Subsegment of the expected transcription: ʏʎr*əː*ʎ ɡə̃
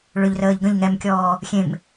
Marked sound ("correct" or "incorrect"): correct